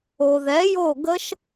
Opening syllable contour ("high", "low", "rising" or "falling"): low